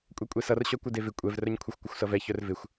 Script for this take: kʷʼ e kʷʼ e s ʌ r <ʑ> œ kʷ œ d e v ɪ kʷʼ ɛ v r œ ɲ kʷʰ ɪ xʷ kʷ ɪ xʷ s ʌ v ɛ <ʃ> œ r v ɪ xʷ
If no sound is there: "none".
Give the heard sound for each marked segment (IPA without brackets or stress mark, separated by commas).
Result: ɕ, ç